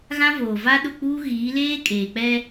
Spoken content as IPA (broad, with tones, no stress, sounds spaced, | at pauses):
ɣ ã˦ v oː˨ v a˦ ɗ ʊ˦˨ k͡p uː˦ ɣ iː˨˦ l eː˦ kʼ eː˨ k͡p ɛ˦